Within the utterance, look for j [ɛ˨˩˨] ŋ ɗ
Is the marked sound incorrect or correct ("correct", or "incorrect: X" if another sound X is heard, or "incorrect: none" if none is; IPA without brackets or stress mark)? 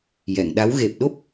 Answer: correct